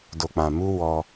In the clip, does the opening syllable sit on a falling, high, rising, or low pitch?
low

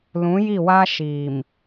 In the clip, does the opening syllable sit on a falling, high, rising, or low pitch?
rising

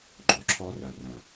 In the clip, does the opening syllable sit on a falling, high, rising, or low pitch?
low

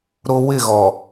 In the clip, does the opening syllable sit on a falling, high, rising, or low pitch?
high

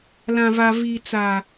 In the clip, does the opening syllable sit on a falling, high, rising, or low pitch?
low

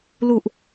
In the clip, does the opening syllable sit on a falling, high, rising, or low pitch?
low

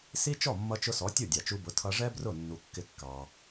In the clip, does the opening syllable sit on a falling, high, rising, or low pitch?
high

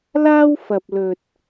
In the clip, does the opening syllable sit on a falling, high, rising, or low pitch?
high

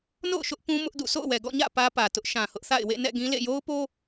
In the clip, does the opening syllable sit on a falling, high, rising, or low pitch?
falling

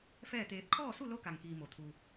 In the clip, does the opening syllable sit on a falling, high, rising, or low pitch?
falling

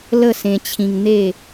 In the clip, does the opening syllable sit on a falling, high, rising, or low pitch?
falling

